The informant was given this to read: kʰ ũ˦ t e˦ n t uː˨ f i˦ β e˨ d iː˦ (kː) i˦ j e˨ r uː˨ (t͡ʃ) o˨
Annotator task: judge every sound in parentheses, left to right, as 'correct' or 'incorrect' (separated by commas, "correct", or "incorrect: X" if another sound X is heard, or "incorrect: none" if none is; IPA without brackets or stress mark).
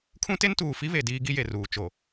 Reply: incorrect: ɡ, correct